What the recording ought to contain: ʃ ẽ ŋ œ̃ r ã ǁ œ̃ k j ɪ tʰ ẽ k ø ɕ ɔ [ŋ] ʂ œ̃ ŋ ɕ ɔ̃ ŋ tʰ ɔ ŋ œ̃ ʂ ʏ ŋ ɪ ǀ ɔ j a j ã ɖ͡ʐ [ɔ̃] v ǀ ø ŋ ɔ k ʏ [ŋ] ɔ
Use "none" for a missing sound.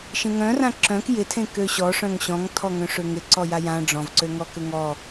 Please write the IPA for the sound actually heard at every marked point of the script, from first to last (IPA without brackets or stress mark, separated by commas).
none, ɔ̃, ŋ